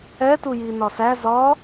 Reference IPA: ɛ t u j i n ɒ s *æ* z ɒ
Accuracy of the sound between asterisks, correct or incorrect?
correct